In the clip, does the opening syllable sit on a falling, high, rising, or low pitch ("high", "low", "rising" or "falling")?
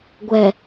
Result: low